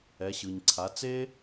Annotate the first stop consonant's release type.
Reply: click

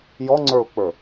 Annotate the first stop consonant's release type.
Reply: click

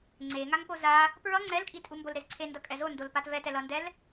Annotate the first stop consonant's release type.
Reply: click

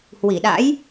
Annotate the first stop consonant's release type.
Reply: implosive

